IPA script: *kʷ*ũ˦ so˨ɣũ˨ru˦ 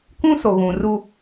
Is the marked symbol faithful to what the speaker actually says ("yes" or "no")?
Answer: yes